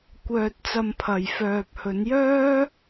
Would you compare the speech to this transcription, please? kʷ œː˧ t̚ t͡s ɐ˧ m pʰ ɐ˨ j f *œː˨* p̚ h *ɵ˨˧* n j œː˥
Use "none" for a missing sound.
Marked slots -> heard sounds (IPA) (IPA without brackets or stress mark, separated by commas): œː˨, ɵ˨˧